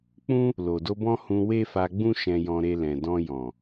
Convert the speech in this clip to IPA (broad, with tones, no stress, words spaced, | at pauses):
k͡pũ˦ | lo˨do˧bɔ̃˦ hũ˧ we˦fa˧ɡ͡bũ˦ ʃɛ̃˧jɔ̃˧ɾe˧ lɛ̃˨dɔ̃˧ jɔ̃˨